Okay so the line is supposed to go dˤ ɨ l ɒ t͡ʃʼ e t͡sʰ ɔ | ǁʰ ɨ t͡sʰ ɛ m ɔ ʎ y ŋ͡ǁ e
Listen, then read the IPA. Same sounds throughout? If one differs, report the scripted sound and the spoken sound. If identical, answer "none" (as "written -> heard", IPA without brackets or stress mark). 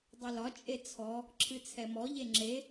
y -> e